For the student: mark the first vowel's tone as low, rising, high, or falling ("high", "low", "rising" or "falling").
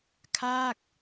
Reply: falling